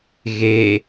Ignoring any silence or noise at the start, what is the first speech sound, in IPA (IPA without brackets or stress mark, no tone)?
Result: ɣ